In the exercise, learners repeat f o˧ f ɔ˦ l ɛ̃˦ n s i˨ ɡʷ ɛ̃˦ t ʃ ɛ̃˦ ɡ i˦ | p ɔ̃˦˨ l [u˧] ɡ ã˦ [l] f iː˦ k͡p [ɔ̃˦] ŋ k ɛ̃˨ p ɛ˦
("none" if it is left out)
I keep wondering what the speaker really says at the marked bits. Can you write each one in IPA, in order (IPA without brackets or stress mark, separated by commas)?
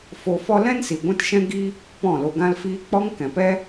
o˧, l, ɔ˦